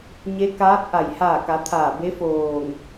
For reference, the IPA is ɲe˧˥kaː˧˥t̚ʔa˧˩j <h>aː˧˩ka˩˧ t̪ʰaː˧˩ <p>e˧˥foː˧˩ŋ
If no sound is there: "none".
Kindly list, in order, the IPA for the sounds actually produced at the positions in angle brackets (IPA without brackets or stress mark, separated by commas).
h, b